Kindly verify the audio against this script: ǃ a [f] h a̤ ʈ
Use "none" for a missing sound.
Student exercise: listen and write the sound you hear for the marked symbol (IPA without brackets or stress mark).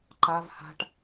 v